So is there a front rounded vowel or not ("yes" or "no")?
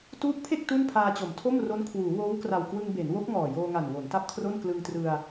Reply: no